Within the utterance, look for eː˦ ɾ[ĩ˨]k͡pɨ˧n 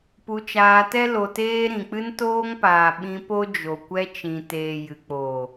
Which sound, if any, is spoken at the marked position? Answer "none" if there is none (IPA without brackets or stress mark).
ĩ˨